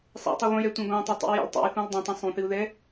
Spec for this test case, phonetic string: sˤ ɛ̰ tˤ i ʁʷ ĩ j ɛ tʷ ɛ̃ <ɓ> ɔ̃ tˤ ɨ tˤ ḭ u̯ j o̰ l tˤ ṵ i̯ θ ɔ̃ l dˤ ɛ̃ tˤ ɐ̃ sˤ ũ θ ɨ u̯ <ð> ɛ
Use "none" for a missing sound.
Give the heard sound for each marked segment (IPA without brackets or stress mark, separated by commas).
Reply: ɡ, ð